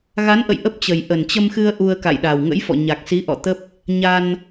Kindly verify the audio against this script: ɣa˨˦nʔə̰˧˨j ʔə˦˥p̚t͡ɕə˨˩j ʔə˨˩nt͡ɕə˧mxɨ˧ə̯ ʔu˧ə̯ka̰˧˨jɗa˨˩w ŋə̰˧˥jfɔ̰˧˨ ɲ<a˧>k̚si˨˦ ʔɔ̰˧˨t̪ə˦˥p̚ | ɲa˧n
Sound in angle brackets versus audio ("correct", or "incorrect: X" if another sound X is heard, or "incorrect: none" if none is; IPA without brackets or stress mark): incorrect: a˨˩